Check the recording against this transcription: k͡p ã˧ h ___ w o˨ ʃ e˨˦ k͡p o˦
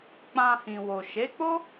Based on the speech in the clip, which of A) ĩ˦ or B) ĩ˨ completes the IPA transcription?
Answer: B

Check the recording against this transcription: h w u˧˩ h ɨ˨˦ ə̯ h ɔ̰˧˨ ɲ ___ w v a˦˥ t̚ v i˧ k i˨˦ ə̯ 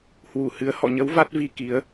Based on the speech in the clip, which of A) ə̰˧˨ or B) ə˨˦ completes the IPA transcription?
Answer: B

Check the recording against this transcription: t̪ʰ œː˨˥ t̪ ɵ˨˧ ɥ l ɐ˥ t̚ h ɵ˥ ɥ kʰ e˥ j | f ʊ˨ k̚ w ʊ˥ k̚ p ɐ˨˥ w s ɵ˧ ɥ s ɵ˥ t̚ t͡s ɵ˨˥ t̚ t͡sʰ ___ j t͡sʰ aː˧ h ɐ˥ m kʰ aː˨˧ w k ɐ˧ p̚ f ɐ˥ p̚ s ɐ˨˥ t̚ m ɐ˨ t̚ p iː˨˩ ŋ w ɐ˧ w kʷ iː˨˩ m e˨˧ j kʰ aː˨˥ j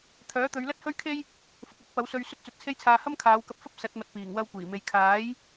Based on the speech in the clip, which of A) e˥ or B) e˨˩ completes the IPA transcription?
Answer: A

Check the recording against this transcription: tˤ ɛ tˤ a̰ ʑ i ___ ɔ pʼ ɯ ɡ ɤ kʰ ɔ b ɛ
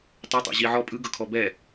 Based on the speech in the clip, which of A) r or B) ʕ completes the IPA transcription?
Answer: B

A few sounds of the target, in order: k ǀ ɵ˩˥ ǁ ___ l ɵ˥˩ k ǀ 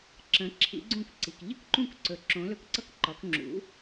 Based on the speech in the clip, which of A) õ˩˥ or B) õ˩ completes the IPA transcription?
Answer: A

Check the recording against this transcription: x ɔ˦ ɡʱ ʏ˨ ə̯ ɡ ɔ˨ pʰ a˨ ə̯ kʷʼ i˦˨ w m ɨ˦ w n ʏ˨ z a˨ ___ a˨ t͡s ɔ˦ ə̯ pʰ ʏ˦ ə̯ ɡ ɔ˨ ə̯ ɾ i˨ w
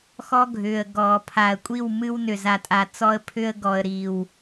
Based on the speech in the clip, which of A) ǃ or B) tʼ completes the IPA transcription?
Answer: B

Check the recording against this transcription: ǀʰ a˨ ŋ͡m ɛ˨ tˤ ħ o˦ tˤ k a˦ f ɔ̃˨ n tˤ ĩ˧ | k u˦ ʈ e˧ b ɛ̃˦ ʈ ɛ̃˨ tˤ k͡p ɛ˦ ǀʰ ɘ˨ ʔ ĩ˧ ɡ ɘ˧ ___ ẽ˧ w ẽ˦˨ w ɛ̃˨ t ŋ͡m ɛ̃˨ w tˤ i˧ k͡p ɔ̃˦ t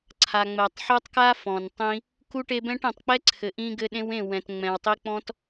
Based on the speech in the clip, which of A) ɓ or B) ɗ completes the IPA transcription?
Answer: B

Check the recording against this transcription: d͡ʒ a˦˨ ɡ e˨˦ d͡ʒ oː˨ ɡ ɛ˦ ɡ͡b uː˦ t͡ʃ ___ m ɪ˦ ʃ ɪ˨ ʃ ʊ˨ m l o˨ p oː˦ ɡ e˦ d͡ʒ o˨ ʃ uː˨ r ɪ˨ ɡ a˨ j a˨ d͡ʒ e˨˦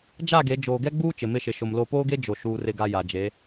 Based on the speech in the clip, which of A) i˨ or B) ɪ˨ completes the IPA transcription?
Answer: B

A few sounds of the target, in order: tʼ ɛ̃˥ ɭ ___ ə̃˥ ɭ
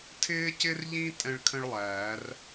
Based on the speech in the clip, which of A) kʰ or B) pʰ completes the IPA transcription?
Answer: A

